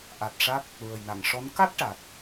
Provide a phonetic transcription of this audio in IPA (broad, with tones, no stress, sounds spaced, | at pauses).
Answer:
ʔ a˨˩ t̚ ʂ a˦˥ k̚ | ɹ ə˨˩ j n a˨˩˨ ŋ ʂ ɔ˧˥ n k a˦˥ t̚ ʈ a˨˩ t̚